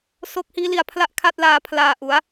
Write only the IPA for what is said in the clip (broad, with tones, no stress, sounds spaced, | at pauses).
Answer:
s o˦˥ k̚ h iː˦˥ l i˧ a̯ pʰ l a˥˩ ʔ kʰ a˥˩ t̚ l aː˧ pʰ l aː˧ ʔ u˩˦ a̯